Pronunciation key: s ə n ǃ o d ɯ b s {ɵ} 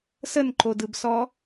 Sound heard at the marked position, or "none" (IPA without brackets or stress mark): ɔ